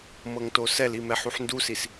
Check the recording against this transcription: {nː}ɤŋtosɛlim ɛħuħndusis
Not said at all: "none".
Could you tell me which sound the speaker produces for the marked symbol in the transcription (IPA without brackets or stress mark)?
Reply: m